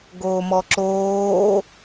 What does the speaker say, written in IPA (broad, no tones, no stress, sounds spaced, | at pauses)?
ɡ oː m ɔ ǁ oː